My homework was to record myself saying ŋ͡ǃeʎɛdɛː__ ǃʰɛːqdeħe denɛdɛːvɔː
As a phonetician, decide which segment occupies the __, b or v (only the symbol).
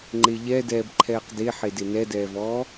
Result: b